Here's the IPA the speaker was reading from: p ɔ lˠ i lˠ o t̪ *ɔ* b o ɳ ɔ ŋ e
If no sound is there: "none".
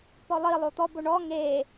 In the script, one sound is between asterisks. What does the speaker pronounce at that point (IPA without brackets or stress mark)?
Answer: ɔ